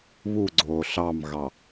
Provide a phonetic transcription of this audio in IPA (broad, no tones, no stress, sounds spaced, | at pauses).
β u ɡ͡ǀ oː ɬ ɑ m ɣ ɑ